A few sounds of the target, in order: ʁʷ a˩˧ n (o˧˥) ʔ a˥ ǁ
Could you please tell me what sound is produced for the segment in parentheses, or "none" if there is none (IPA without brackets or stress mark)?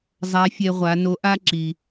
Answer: o˧˥